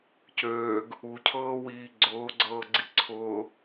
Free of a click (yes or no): no